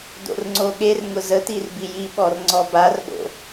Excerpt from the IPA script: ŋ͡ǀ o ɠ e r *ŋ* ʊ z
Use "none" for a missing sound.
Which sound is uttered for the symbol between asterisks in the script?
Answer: ŋ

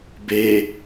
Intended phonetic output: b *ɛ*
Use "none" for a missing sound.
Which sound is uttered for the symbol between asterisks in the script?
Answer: e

